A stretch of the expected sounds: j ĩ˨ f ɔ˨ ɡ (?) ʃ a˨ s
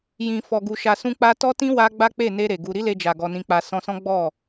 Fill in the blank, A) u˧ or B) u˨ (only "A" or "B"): B